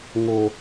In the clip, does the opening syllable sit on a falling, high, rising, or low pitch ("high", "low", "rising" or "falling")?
high